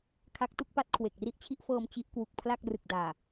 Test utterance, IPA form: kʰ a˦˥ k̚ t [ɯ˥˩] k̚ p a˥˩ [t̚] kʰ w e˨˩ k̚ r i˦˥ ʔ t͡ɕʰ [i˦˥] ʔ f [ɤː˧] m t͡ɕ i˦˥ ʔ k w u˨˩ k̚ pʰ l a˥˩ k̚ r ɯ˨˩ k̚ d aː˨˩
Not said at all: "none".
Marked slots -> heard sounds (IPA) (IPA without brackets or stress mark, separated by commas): u˥˩, t̚, i˦˥, ɤː˧